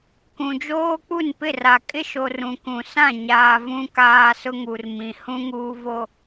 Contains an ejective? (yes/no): yes